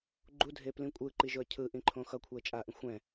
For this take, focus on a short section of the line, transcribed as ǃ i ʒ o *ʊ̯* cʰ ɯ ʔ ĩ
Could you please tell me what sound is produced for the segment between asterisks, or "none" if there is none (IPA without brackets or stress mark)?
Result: ə̯